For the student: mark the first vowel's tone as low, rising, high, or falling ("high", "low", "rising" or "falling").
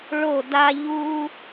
falling